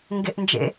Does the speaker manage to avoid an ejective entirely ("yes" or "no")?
yes